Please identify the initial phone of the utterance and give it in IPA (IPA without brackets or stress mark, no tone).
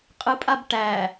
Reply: qʼ